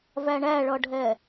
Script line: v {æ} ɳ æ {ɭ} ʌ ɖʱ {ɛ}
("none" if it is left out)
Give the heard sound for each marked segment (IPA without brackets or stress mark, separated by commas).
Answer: æ, ɭ, ɛ